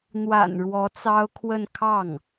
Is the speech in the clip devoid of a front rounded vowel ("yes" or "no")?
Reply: yes